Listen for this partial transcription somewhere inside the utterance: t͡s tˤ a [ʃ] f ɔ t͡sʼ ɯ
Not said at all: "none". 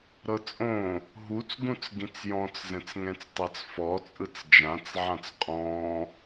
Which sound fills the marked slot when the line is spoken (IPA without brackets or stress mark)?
t͡s